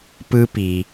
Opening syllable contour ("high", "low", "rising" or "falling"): high